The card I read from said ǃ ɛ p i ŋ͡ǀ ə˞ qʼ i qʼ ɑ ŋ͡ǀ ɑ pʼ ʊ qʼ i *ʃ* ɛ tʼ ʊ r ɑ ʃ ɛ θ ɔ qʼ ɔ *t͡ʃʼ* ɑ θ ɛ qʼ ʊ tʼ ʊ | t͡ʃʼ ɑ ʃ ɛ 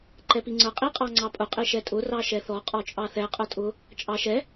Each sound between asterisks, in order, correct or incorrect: correct, correct

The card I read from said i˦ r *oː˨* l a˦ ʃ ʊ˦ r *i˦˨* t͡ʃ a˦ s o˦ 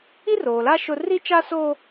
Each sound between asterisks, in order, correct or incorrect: correct, incorrect: i˦

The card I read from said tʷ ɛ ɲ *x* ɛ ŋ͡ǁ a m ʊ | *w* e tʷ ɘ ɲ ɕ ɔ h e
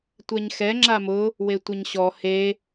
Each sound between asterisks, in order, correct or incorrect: correct, correct

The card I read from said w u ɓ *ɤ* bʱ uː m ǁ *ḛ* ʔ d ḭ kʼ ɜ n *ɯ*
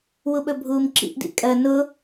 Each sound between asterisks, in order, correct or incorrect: incorrect: ɵ, incorrect: ḭ, incorrect: ʊ

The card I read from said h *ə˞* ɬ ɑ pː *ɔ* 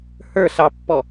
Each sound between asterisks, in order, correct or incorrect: correct, correct

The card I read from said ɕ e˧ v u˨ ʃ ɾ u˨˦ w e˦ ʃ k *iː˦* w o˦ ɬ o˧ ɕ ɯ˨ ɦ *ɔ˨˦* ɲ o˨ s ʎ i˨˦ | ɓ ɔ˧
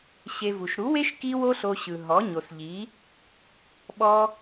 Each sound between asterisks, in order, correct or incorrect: incorrect: i˦, correct

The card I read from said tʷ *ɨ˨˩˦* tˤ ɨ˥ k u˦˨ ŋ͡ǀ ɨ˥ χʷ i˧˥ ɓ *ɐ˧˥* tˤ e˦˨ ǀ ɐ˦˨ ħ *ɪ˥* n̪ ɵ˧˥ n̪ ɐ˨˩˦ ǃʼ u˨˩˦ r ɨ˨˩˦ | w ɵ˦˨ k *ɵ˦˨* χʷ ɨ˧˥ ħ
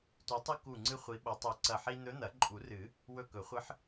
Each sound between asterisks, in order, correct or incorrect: incorrect: ɨ˧˥, correct, incorrect: i˥, incorrect: ɵ˨˩˦

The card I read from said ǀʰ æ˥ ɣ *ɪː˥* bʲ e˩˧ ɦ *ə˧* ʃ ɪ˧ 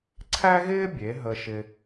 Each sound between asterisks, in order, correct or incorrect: correct, correct

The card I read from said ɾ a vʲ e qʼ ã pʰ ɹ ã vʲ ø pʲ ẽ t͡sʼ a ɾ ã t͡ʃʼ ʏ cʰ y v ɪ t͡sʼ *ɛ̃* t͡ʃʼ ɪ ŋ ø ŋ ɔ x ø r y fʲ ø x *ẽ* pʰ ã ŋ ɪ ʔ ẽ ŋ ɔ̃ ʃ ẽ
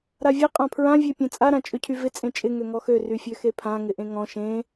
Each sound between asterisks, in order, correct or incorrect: incorrect: ẽ, incorrect: e

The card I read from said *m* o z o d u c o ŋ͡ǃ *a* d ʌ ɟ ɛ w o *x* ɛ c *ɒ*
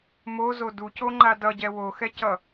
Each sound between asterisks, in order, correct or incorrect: correct, correct, correct, incorrect: ʌ

